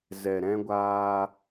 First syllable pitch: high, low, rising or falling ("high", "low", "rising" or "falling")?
low